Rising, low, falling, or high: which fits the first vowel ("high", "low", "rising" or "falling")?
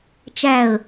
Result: falling